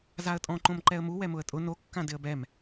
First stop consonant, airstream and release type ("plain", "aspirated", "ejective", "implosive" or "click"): ejective